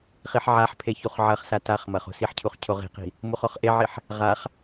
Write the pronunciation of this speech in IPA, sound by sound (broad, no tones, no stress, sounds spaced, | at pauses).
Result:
χ i ħ ʕ a ħ pʰ e ç u χ ʕ ɐ χ s a t a χ m ɐ χ o̤ s i ħ cʰ u χ cʰ o ʁ i̤ q i̤ | m u χ ɔ χ ʔ e ʕ i ħ | ʁ a χ